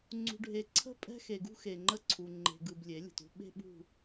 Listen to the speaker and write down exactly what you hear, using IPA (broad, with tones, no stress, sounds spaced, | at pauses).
ŋ͡ǀ ṳ˨ ɖʱ e˨ ǀʰ ə̤˦˨ pʼ ɛ̤˦ x e˨ ɡ ṳ˦ x e˨ ŋ͡ǃ ə˦ ǀʰ u˨ ŋ͡ǃ e̤˨ ɡ ɯ˨ b lʲ e˨˦ lʲ ə̤˨ t ṳ˦ ɓ e̤˦ ɓ ṳ˦˨